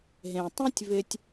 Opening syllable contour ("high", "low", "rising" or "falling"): low